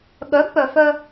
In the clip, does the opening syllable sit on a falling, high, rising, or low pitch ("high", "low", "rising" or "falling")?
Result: rising